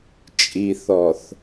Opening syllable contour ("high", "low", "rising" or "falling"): low